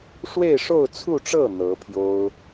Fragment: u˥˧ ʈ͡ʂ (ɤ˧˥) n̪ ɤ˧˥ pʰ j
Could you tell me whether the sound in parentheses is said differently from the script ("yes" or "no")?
yes